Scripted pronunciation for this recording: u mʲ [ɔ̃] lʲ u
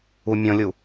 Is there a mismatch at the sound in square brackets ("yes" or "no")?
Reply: no